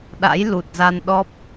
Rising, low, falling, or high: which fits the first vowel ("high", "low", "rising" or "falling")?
rising